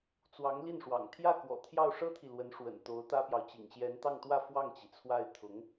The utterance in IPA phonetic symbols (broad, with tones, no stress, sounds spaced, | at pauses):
t͡s w ɑ˧˥ ŋ l i˥˩ n ʂ w ɑ̰˨˩ ŋ t̪ʰ j ä˥˩ k w ɔ̰˨˩ t̪ʰ j ɑ˥˩ ʊ̯ ʂ ɤ˥ t̪ʰ i˨ l w ə˧˥ n ʂ w ə̰˨˩ n t̪ o˧˥ ʊ̯ t̪ ä˥ p j ɑ˨ ʊ̯ t͡ɕ ḭ˨˩ ŋ ɕ j ɛ˧˥ n t̪ ɑ˥˧ ŋ t̪ w ä˥˧ f w ɑ˥˩ ŋ t͡ɕ i˩ t͡sʰ w a˥˩ ɪ̯ t̪ʰ ʊ˧˥ ŋ